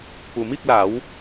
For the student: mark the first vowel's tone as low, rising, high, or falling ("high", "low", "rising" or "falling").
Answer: low